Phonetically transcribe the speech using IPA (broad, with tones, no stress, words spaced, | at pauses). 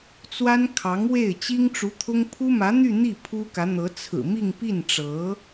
t͡swa˥nkʰɑ˧˥ŋwe˥˩ɪ̯ t͡ɕi˥ŋʈ͡ʂu˧˥t̪ʰʊ˥ŋ pʰu˥mä˧˥n̪y˥˧ n̪i˥˩ pʰu˥kä˧˥n̪ɤ˧˥ t͡sʰɹ̩˨˩mi˥˧ŋpi˥˩nʈ͡ʂɤ˧˥